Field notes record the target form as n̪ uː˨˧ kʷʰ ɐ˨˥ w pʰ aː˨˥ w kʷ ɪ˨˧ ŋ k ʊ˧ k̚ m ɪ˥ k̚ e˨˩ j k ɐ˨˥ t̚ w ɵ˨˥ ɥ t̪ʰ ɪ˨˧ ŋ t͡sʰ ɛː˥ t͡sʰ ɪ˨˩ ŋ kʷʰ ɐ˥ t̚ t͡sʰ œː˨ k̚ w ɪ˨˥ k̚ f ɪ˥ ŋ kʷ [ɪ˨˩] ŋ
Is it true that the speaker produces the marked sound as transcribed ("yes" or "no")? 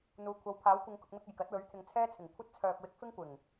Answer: yes